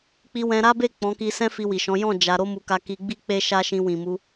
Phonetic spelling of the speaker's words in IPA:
k͡p i˧ w ɛ̃˧ ɾ a˦ b e˦˨ k͡p ɔ̃˨˦ k i˧ s ɛ̃˦ f i˧ w i˨ ʃ ɔ̃˨˦ j ɔ̃˦˨ d͡ʒ a˧ ɾ o˦ m u˧ k a˧ k i˧ ɡ͡b i˦ k͡p e˦ ʃ a˦ ʃ ĩ˧ w ĩ˨ m u˧

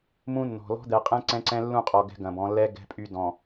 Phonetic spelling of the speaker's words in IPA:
m ũ˦ nː ɔ̤˨ l ɔ̤˦ d̪ ɛ˨ qʼ ɛ̃˦ ǀ ɛ̃˦ ǀ ɛ̃˦ lː ũ˦˨ qʼ ɔ˨ ɡ ɛ̤˦ ɡ ɐ̃˨ b ɔ̃˨˦ lː ɛ˦ ɡ ɛ̤˦ pʼ y˦ d ɔ̃˨

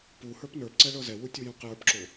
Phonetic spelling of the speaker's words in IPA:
p u h ə˞ p n ə˞ p ǀ ɛ ɭ ɤ z ɛ w u tʲ u j ũ q j ə˞ p ǁ o

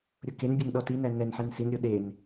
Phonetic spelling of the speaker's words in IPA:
ɾʲ o k e n bʲ ɛ n ɗ ɔ t i n æ n ɛ n ħ e n s i n ɾʲ o ɗ e n

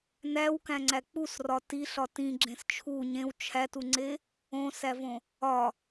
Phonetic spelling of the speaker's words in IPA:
n æ w k æ̃ ŋ͡ǀ æ k͡p u s r ɒ t i ɬ ɒ t ĩ ɡ͡ǁ ẽ s t͡ʃʰ u ɲ ẽ w t͡ʃʰ æ t u ŋ͡ǀ e | õ s æ v õ | ɒ

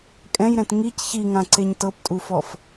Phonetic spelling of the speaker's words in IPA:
kʼ ɛ̃ j ɾ ɛ̃ t ŋ i c ç i ŋ ã ǀ e ɲ t ɤ p tʼ u f ɔ f

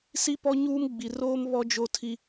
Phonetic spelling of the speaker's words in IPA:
s i˦ p ɔ˦ ɲ uː˦ m ɡ͡b i˨ r oː˦ m β ɔ˦ d͡ʒ o˦ tʰ i˦

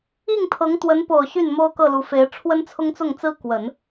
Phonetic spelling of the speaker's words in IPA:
i˥˩ ŋ t̪ʰ ɤ˧˥ ŋ t̪ w ə˧˥ n p o˨˩ ʊ̯ ɕ y˥˩ n m o˥ ʊ̯ k ɤ˥˩ l u˧˥ f e˧˥ ɪ̯ ʈ͡ʂʰ w ə˥ n t͡sʰ ʊ˥ ŋ t͡s ʊ˥˩ ŋ t͡s ɹ̩˥ k w ə˨˩˦ n

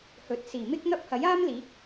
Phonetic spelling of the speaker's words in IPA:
h ɵ˨˥ t̚ s iː˨˩ m ɪ˥ k̚ n̪ ɐ˥ p̚ h ɐ˨˥ j aː˥ m l iː˨˥ k̚

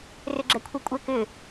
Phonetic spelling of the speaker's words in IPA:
r ʏ ɡ͡ǁ ɛ kʷʰ ɛ kʷʼ ɛ k ʏ

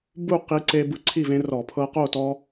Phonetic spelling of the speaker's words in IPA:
b u˥˨ q i˦ ǀ e˦ b ɯ˦ ǀʰ i˥˨ v ẽ˦ r ɔ˧˩˧ pʰ ɤ˦ q o˥˨ t ɔ˦

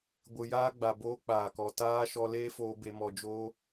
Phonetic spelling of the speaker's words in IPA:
ɡʷ ɨ˨ j aː˦ ɡ͡b a˨ b oː˦ k͡p aː˨ k ɔ˨ t aː˦ ʃ ɔ˦ l eː˦ f oː˧ b e˧ m ɔ˧ d͡ʒ oː˦

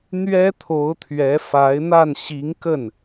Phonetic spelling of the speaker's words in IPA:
n̪ ɥ ɛ˥ t̪ʰ o˧˥ ʊ̯ t̪ʰ ɥ ɛ˧˥ f a˧˥ ɪ̯ n̪ a˥˩ n ɕ i˧˥ ŋ k ə˥˩ n

